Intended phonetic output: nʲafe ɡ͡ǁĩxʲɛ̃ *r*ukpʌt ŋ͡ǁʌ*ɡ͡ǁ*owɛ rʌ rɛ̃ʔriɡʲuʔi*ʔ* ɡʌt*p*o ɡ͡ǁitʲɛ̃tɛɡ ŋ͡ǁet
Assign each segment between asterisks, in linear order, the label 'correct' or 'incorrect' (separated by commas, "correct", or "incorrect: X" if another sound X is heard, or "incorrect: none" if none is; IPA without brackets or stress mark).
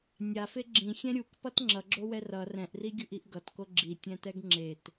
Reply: incorrect: ɾʲ, correct, correct, incorrect: k